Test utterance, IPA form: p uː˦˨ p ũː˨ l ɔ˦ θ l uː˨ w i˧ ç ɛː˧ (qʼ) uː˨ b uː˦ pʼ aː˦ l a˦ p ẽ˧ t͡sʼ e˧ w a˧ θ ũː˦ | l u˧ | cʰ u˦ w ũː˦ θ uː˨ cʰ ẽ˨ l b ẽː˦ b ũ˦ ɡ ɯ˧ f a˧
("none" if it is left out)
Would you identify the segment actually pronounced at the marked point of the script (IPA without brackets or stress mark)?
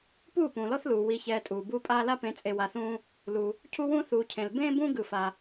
tʼ